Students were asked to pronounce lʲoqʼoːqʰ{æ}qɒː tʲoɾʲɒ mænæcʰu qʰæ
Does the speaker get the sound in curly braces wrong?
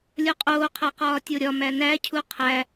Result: no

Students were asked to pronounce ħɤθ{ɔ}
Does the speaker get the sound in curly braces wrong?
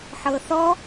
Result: no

